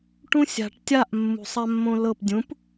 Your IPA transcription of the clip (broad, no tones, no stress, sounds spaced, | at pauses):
ʈ ũ sʲ a̤ ʈ tʲ a ʔ mː ṳ sˤ a mː õ l ɤ p dʲ ũ p